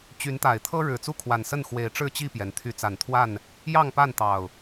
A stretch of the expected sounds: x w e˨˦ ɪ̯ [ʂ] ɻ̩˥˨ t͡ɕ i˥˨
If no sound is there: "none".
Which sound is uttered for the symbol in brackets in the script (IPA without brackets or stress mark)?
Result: ʈ͡ʂ